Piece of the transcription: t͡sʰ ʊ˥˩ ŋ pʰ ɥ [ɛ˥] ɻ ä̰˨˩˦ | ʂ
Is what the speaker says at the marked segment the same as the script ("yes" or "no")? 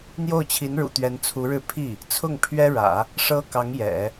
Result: yes